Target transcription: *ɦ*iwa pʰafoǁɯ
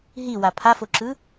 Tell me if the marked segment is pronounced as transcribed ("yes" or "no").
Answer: yes